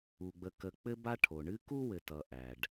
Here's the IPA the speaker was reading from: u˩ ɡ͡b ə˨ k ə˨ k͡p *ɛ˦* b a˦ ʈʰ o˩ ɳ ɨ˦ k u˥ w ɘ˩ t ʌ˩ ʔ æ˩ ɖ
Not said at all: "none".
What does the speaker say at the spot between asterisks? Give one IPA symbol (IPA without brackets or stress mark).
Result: ɘ˦